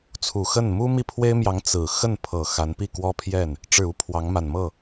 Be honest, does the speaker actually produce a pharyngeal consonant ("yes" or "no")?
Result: no